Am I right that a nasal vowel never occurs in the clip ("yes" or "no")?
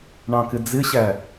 no